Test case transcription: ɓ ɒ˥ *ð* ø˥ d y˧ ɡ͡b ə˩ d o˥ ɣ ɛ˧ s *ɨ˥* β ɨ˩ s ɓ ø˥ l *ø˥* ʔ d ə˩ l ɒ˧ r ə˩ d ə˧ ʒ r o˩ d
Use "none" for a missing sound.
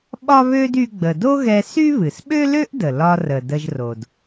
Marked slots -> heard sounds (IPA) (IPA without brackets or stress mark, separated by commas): β, y˥, ø˥